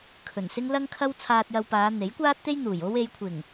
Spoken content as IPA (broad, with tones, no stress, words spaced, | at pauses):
kʰɵ˨˩nsɪ˥ŋ lɐ˥ŋkʰɐ˥w t͡sʰaː˧t̚jɐ˧wpaː˨˧ n̪e˨˥jkʷaː˥t̚t̪e˥j n̪uː˨˩jo˥w e˨˧jkʷʰɪ˨˩ŋ